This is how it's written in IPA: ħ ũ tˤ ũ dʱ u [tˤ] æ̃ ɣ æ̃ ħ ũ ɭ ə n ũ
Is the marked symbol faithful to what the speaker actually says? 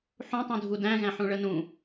no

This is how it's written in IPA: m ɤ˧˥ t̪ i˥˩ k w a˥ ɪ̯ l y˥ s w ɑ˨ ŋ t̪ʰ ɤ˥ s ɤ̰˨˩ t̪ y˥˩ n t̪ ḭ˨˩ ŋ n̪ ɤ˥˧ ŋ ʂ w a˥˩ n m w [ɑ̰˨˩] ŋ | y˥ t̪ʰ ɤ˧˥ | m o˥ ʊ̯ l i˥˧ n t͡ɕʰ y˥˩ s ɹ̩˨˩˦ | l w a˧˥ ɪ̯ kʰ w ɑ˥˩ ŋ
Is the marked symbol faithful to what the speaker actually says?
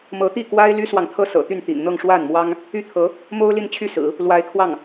no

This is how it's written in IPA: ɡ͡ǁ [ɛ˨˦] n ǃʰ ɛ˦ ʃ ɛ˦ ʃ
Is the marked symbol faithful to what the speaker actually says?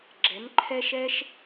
yes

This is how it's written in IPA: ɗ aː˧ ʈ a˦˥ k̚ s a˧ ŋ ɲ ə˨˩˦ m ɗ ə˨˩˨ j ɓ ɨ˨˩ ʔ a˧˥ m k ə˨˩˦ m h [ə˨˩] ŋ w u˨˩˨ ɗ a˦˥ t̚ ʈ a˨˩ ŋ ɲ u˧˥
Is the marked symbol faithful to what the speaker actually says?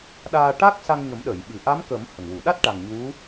yes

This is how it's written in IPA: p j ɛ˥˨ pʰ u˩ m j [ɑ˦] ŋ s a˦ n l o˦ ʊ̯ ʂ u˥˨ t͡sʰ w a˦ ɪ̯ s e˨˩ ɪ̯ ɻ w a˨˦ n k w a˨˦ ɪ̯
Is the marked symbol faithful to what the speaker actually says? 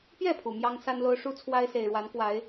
yes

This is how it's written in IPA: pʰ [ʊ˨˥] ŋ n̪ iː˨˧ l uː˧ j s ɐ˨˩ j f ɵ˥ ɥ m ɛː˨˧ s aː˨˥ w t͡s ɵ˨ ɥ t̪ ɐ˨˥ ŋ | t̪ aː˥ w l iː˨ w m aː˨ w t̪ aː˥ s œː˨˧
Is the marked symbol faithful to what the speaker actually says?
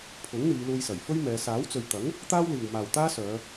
yes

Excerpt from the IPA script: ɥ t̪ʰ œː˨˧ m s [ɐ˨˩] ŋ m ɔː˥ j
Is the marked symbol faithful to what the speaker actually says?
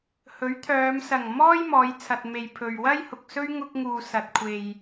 yes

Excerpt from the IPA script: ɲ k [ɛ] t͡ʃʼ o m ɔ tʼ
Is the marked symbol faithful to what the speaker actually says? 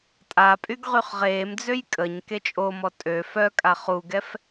no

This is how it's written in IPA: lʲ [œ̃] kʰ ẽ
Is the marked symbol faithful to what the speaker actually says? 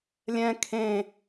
no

